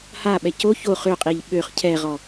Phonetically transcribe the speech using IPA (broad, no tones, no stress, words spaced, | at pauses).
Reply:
haɓɛ co ço χøqʼiʎ ɓøχ cʰɛʁɔ